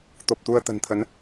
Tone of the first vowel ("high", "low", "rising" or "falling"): low